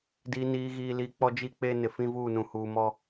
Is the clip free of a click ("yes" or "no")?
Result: yes